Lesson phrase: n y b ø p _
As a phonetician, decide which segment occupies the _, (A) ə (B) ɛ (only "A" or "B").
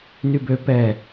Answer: B